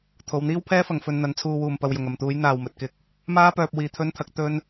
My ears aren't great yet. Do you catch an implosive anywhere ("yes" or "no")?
no